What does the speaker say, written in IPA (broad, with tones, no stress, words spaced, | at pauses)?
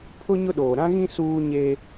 pʰʊ˦ ɲʊ˦ɗoː˨ ɾã˦ɣĩ˦ suː˦ɲe˦